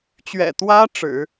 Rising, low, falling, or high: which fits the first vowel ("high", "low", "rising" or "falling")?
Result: low